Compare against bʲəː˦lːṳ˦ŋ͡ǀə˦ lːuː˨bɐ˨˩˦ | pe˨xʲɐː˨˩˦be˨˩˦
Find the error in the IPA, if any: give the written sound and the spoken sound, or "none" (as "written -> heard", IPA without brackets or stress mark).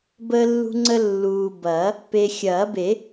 bʲ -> b